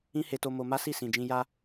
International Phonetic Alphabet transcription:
ĩ˦he˧to˧ mo˧ma˦ si˦˨sĩ˨d͡ʒĩ˧ ja˧

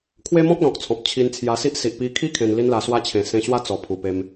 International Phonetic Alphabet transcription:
kʰwe˦mɔ̃˦k̚lɔ̃˨k̚t͡sʰɔ̃˨p̚ t͡ɕʰi˧n t͡sʰja˧si˦ʔ si˨ʔpi˧kʰi˦ kʰẽ˧nli˦nla˧ swa˦t͡ɕʰẽ˨˩ sẽ˧ɕwa˦ t͡sɔ˨˩pʰu˨˩ pe˧m

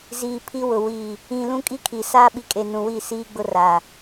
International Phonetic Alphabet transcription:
ziː˨pʰi˦wʊ˨ wiː˨ | ĩ˨ lũ˦kʼi˦ kʰi˨ saː˦ɓi˨kʼe˨ nũ˨wi˦˨ siː˦ɡ͡bʊ˦raː˨

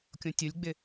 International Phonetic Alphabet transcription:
kʲõtʲʊlʲɡ͡bɪ

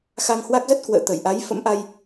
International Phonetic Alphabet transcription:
xa˧ŋhwa˦˥k̚zə˦˥t̚ kwə̰ː˧˨t̪ə˧˩jʔa˨˦j fə̰˧˥mʔa˧j

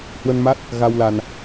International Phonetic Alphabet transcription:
hwə˧nma˦˥t̚ | ɣa˧wla˧n

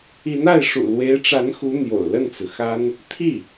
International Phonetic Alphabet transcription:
i˧˥na˥˩ɪ̯ ʂṵ˨˩lwe˧˥ɪ̯ʈ͡ʂa˧˥n xu˧˥ n̪jo̰˨˩ʊ̯ lə˥˩nt͡sɹ̩˩xa˥n | t̪ʰi˥˩

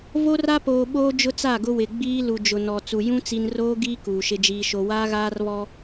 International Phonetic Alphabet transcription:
vo˦ra˦poː˨ɓoː˦ d͡ʒʊ˦t͡sa˦˨ɡʊ˦ wɪ˨ɡ͡biː˦ lu˨d͡ʒʊ˨nɔ˨ t͡su˨ jũ˦ t͡si˦n roː˦ɡiː˦ kuː˨ʃɪ˦d͡ʒiː˦ʃo˦ waː˦ɣaː˦rβɔ˦

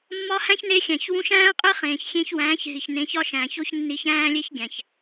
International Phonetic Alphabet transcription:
mːɒ˧hæ̃˦çne˧xʲæ̃˨ç wũ˧ʃæ̃ː˦qʼe˦ χẽː˨çxʲẽ˧çwæ̃ː˨˦ç ɦi˨çnẽ˨˦çɒ˦ʃæ̃ː˨ç o˦ç nːi˧çæ̃ː˦lʲe˦çɡʲæ̃˨ç

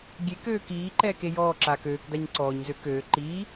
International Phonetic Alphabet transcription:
ɡʲek øːkiːǃɛːk ejɔːǁaːk øːkdaɲ ǀɔːɲzø køː ǃiː

